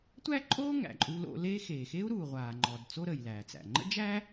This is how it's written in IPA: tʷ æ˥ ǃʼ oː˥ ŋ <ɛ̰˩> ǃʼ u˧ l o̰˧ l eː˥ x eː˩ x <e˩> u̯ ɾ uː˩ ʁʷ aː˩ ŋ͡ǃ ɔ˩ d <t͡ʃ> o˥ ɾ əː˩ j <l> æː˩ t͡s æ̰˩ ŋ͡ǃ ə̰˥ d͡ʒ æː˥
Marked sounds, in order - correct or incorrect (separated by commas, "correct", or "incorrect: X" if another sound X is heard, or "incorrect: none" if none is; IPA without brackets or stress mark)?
incorrect: æ̰˩, incorrect: e˥, incorrect: t͡s, correct